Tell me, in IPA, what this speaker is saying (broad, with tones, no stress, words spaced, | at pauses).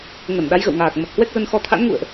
ŋə˧˩nɗa˨˦jɣə̰˧˨wŋaː˨˩k̚ mə˨˩t̚hwɛ˦˥k̚zə˧n xɔ˨˦t̪ʰa̰˧˥n ŋṵ˧˨ə̯ʔ